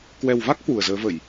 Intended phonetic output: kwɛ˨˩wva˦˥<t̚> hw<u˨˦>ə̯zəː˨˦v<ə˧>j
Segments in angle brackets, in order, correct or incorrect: incorrect, incorrect, incorrect

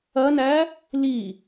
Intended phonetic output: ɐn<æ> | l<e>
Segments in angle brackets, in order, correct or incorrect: correct, incorrect

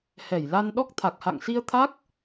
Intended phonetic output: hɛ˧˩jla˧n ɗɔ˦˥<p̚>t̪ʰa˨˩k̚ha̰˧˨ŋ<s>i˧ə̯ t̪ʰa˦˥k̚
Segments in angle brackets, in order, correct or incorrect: incorrect, correct

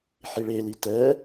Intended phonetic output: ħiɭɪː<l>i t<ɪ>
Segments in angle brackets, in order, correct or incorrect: correct, incorrect

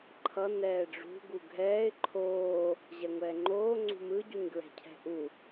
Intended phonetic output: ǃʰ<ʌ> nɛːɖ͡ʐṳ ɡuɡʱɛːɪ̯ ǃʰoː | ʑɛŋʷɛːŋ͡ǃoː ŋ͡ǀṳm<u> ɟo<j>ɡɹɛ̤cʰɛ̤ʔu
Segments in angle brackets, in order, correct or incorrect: correct, incorrect, incorrect

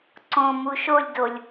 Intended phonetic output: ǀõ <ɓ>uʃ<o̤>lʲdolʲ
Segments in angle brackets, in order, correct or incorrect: incorrect, incorrect

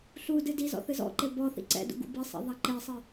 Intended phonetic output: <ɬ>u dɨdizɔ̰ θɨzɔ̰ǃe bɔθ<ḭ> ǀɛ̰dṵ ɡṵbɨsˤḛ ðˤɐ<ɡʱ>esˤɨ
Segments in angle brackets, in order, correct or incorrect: correct, correct, incorrect

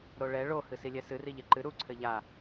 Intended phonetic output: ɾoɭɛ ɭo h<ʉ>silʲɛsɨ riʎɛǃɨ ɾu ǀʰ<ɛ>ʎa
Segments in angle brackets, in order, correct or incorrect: incorrect, incorrect

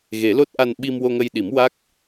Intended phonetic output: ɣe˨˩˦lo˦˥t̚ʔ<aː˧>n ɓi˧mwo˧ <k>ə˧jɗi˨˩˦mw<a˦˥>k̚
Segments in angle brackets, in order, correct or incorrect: incorrect, incorrect, correct

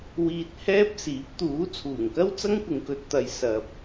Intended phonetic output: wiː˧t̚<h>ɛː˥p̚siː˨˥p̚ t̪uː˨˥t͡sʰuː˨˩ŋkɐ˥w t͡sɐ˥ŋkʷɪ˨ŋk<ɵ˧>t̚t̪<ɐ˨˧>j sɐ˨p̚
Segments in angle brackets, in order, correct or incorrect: correct, correct, correct

